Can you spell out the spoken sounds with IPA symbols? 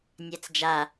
nʲ æ t͡s d͡ʒ a

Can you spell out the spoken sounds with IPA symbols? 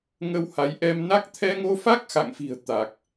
ŋ ə˧ w h a˨˦ j ʔ ɛ˧ m n a˦˥ k̚ t̪ʰ ɛ˧ ŋ o˧ f a˦˥ k̚ x a̰˧˨ ŋ f i̤˨˩ ə̯ t̪ a˨˩ k̚

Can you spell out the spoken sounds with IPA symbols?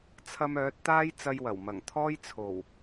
t͡sʰ ɐ˧ m œː˨˥ t̚ t̪ aː˥ j t͡s ɐ˧ j w ɐ˨˩ w m ɐ˨˩ ŋ t̪ʰ ɔː˥ j t͡sʰ o˨˩ w

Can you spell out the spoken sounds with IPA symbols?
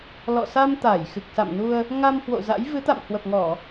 l ɔ̰˧˨ s a˧ m t̪ a˧˩ j x ɨ˨˩ k̚ s a̰˧˨ m n u˧ ə̯ | ŋ a˧ m h w o̰˧˨ z a̰˧˥ j v ɨ˨˦ t̪ a̰˧˨ m h w ə˨˩ p̚ ŋ ɔ˧˩˨

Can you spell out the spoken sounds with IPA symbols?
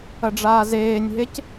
ɐ ɖ͡ʐ aː z eː nʲ ɦ e c

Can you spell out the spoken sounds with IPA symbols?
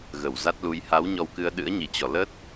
ɣ ə˧˩ w z a˦˥ t̚ l u˧ j h a˨˦ w ɲ ɔ˧ w k ɨ˧ ə̯ ɗ ɨ̰˧˥ ə̯ ɲ i˧˩ t͡ɕ ɔ˧˩ l ə˦˥ t̚

